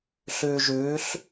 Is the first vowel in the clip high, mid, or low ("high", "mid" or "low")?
high